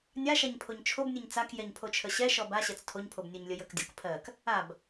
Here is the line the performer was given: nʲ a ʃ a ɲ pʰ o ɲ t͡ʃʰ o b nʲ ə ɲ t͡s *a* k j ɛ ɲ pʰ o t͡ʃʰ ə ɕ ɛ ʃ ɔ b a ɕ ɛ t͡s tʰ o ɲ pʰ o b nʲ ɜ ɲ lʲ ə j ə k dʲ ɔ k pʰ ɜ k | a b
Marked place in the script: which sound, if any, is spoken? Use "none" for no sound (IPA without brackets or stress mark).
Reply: a